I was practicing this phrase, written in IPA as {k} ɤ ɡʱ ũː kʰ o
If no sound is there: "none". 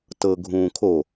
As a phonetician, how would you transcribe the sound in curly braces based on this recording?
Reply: t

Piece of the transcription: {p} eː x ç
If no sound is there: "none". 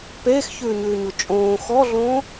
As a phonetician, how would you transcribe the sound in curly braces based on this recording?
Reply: p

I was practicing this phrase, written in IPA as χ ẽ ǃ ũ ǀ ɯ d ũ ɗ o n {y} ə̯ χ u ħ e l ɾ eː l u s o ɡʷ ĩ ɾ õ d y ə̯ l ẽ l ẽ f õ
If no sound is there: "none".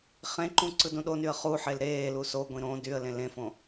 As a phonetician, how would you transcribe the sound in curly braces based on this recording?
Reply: y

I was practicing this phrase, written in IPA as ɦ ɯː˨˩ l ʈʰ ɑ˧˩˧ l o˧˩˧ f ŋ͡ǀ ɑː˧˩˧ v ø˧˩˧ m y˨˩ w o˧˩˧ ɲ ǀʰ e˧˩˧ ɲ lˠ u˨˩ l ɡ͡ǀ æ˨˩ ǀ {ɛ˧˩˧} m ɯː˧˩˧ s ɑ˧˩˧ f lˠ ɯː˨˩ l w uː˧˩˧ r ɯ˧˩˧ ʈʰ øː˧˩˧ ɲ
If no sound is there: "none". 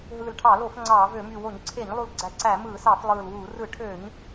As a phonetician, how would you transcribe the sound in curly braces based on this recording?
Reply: æ˧˩˧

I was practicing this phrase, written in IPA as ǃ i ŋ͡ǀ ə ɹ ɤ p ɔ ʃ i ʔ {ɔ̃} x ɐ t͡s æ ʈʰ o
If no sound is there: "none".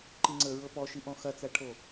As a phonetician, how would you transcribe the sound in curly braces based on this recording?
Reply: ɔ̃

